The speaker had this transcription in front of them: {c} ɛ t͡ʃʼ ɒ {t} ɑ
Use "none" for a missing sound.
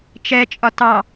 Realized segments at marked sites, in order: t͡ʃ, t

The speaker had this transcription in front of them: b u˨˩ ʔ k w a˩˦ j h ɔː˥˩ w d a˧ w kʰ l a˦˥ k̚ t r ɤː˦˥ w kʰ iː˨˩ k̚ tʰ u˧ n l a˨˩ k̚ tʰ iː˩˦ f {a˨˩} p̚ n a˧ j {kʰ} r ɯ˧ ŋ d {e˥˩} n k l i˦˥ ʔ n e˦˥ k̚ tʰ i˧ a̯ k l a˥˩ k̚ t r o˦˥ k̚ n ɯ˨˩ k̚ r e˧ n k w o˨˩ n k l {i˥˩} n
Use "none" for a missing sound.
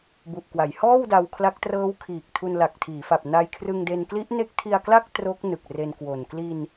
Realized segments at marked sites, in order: a˨˩, kʰ, e˧, i˧

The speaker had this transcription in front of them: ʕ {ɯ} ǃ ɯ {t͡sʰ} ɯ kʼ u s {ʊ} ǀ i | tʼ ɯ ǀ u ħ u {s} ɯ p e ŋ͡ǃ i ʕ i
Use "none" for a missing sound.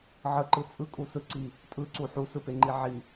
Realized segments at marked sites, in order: ə, t͡sʼ, ɯ, s

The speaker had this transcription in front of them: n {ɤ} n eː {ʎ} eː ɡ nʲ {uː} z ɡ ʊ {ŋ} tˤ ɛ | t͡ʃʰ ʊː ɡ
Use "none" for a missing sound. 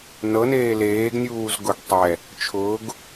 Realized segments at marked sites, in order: ɤ, l, uː, ɡ

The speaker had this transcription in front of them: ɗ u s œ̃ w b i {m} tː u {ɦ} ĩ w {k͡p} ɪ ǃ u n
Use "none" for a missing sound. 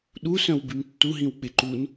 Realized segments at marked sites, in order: m, ɦ, k͡p

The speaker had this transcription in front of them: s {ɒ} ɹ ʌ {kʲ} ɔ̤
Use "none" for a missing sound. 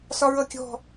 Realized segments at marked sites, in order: ɒ, kʲ

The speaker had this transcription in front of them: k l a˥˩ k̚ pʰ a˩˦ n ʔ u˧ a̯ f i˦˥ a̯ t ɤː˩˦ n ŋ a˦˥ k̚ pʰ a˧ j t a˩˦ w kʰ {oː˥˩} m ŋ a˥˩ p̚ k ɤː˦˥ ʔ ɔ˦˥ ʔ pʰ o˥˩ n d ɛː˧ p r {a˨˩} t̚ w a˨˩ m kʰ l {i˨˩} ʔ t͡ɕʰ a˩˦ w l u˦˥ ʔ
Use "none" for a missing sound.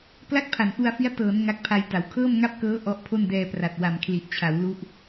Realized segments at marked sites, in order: ɤː˥˩, a˨˩, i˨˩

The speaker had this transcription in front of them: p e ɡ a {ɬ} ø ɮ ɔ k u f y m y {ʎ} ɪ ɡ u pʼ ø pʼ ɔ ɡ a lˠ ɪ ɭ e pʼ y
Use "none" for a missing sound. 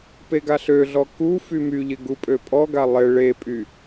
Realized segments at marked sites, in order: ɬ, ʎ

